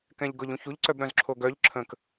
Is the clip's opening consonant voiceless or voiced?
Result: voiceless